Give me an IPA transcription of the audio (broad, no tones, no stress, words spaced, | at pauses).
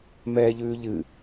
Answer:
mɛːʎʉːʎɨ